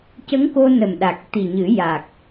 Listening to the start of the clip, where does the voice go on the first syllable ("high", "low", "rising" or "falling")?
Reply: rising